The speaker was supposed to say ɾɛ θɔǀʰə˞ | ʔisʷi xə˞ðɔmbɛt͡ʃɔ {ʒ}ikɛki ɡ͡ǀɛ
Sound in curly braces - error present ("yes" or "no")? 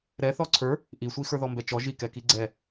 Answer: no